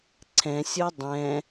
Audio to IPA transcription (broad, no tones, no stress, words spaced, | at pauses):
ǀʰɛ̃sʲo dˤɛ̃